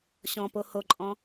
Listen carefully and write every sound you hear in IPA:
ɕɔ̃po hoǃʼɔ̃

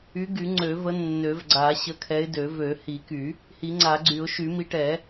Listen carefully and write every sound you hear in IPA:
y˨˦ɡy˨˩˦ ŋ͡ǀø˨˩˦və˨˦ nːø˨˩˦vɡ͡ǀa˨˩˦ ɕə˨˦kʰɛ˨˦ɪ̯dø˨˩˦ vø˨˩˦hi˨˩˦ky˨˩˦ | hi˨˩˦ŋ͡ǀa˨˩˦ɡ͡ǀy˨˩˦ʊ̯ ʃy˨˩˦mi˨˦ʈɛ˨˩˦

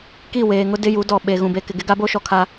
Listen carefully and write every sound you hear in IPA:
ki˦˨weː˨ŋʊ˦ dɪ˦ju˨˦dɔ˨ ɓe˨ ɣũ˨be˨kɪ˨ ɡɪ˦ɡa˦bo˦ ʃɔ˨kʰa˦

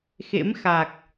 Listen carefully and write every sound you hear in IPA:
xḛ˧˥mxa˨˩k̚

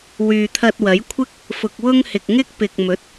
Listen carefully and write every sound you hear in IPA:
wyː˨t̪ʰɐ˧t̚wɐ˨˥jkʷʰɪ˥k̚ | fʊ˨k̚wʊ˥ŋhɪ˨k̚ ŋɪ˥k̚pɪ˨k̚mɵ˨˥t̚

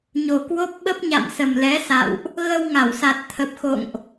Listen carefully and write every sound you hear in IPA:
ɲo˨˩kwo˦˥p̚ ɓə˦˥p̚ɲa̰˧˨msə˨˩m lɛ˨˦ sa̰˧˨wʔ | ɣə˧w ŋa˧˩wsa˨˩t̚t̪ʰə˨˩p̚ xo̰˧˨ŋʔ

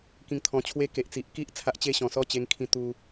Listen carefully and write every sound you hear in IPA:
kĩ˧ŋt̪ʰɔ̃˧t͡ɕʰwe˦ ke˨ʔt͡si˨ʔki˦ʔ t͡sʰa˦ʔt͡ɕe˦ɕɔ̃˨˩ sɔ˥˧t͡ɕe˧ŋkʰĩ˧ t̪u˧

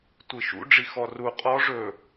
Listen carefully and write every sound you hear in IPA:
tʷiʃṵ ɖ͡ʐixɔru qʼɔ ʐɵ

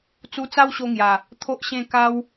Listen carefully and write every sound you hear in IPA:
t͡su˧t͡sa˦wɕo˧ŋja˨˩ | t̪ʰo˦ʔɕẽ˥˧ ka˦w

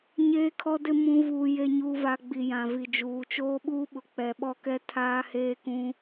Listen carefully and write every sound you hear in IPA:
ɲeː˦kʰɔ˦dɪ˦ mũ˦ vuː˦je˦ɲuː˦va˦ ɡ͡bi˨jã˨vi˨d͡ʒuː˨ t͡ʃoː˦ɓuː˦ɓʊ˨ k͡pɛ˨ɓɔ˦kɛ˦ tʰaː˦heː˦kũ˦

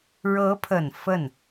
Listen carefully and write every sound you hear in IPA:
ɻɤ˧˥pʰə˨˩n fə˥˩n

